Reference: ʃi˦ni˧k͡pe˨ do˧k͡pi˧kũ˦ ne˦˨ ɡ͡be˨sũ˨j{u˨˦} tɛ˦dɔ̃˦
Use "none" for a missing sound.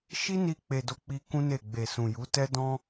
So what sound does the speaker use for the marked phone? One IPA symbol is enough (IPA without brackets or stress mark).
u˨˦